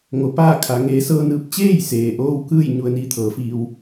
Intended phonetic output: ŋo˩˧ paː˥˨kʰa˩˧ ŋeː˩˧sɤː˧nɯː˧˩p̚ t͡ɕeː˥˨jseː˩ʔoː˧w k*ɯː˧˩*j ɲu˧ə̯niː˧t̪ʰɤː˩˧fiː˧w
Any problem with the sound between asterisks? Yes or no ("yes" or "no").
yes